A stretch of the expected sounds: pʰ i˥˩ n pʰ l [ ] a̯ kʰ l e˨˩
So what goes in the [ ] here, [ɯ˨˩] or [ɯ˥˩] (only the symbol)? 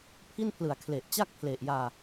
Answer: ɯ˨˩